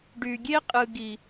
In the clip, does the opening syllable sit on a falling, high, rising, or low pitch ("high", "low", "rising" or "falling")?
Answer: low